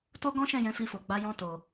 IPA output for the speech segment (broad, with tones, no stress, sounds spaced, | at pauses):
t o˦ ɡ ɔ̃˦ ʃ ɛ̃˦˨ j ɛ̃˨˦ f i˧ f o˨ ɡ͡b a˨˦ j ɔ̃˧ t o˨